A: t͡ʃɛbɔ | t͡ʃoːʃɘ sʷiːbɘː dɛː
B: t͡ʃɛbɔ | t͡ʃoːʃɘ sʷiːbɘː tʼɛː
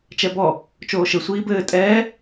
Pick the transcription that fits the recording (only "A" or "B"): B